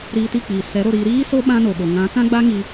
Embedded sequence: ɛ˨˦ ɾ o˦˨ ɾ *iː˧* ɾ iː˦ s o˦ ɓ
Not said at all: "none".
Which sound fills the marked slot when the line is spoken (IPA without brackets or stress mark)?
iː˧